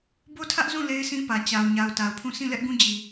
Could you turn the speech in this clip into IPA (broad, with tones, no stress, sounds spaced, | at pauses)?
b o˦ tʰ ä˦ ʔ z ũ˦˨ l e˦ ɪ̯ sʰ ĩ˦ p ä˨ t͡ɕ a˨ ʊ̯ ɲ a˨ ʊ̯ t a˨ ʊ̯ pʰ ũ˦˨ sʰ ĩ˦˨ l ɛ˦ ʔ ɡ ũ˦ d͡ʑ i˨